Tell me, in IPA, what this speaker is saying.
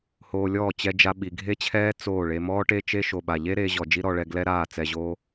hoː˧lʲɔː˦˨ t͡ɕɛ˧d͡ʒa˧ ɓi˨ɡʱe˦t͡ɕʰɛː˦ t͡soː˦˨ɭe˧ mɔː˦ʈe˦t͡ʃe˦ ʃo˨ɓa˨ʎe˦ ɾeː˦ʑɔ˧ d͡ʒi˦ɾɔ˧ɭɛ˧ ɡlɛ˦ɾaː˦˨ t͡sɛ˧ʑoː˦

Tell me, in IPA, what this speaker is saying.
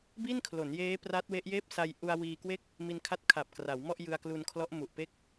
bi˥˩nkʰlo˩˦njeː˦˥ pra˦˥t̚we˦˥ʔjeː˥˩p̚ sa˧jʔu˧a̯ wiː˧kwe˥˩k̚ | mi˧nkʰa˦˥t̚ kʰa˨˩p̚ kra˩˦wmɔ˥˩ʔ jɯ˧a̯klu˧nkʰlɔ˦˥ʔ mu˨˩ʔpe˥˩k̚

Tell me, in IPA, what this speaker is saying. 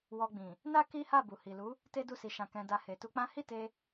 wɔ˧ɡ͡bĩ˨ | na˦ ki˦ha˦˨bu˨ hi˨lu˨˦ | te˦du˦˨si˧ ʃã˧kɛ̃˧da˧ he˨tu˧k͡pã˦ hi˦˨te˧

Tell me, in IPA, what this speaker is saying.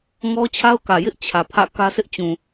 ŋɔ˦t͡ɕʰa˦ʊ̯kä˨jɪ˦ʔ t͡ɕʰä˨pʰä̰˦˨ kä˦sɪ˦ʔ t͡ɕũ˨

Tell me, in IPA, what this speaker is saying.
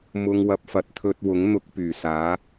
mʊ˧ŋwɐ˧p̚fɐ˨˥t̚ t̪ʰɵ˧t̚ wʊ˨˥ŋn̪ʊ˧k̚pyː˨˩ saː˨˥

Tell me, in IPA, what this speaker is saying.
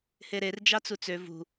heɾer d͡ʒɑt͡sut͡sø vṳ

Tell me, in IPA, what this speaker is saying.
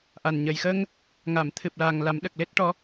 ʔa˨˩n ɲə˨˩jxə˧ŋ | ŋa˨˩˨mt̪ʰɨ˨˩p̚la˨˩ŋ la˨˩˦mɗə˨˩k̚le˦˥t̚ʈɔ˧˥

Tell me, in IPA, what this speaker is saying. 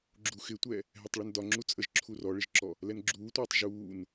ɡ͡ǁuxɪtʷɛ | ɦɛtˤɭʌndɒ ŋ͡ǁut͡sʼəʒǁʰu rɔɭɪʒǁɔ | lɛnɡ͡ǁuːtʷʌːtˤ ʒuːn

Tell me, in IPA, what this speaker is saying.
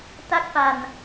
ta˥˩k̚pa˧n

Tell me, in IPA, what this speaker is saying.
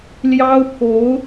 ljɑ˥ʊ̯pʰo˧˥ʊ̯

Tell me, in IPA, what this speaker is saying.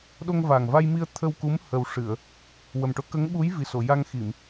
ɗo˧ŋva˨˩ŋva˧jmi˧ə̯ t̪ʰə˧wku˧˥m həː˨˩w ʂɨ˨˩˨ə̯ | wə˨˩mʈo˧˥ kə˧˥ŋɓu˧˥j vi˨˩so˨˩˨ja˧ŋ xi˨˩˨m

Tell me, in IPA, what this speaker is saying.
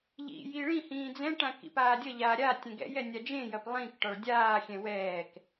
ʎḭji ɭĩhĩː d͡zɛ̃ʈã kḭpaːdʲʌʎaː ɾʲa tʲɛ̃ɡɛ̰jɛ nʲad͡ʒẽjɐp lˠĩk ʈɒɭdʲaːxʲɛ̃ wɛːk

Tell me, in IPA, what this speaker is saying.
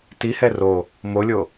tihɛ ro | molʲo

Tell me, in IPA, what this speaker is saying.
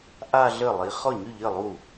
ʔa˥˧ɮə˥˩lˠi˨˥ χɔ˥˩ɲy˥˩ʎə˥˩ lˠu˥˩

